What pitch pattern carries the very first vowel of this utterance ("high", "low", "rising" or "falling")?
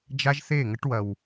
high